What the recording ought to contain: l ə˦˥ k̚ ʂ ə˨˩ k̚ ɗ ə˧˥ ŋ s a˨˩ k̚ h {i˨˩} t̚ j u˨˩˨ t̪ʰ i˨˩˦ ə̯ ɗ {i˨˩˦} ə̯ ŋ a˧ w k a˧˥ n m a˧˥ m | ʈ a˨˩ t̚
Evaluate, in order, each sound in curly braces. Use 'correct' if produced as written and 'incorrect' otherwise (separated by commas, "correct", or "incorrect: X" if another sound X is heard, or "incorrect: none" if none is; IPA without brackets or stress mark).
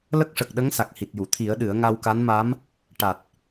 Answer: correct, incorrect: ɨ˨˩˦